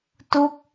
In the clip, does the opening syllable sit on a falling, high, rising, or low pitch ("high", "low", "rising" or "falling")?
falling